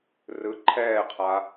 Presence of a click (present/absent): present